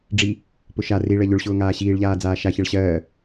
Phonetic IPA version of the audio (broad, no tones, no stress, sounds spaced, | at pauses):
ɖ͡ʐ i | p ʊ ʃ a r i ɭ ɜ ʎ ʊ ɭ ɕ ʊː ŋ aː ɕ iː ɭ ʎ aː d͡z aː ʃ a ç ɛ ɭ ɕ ɜː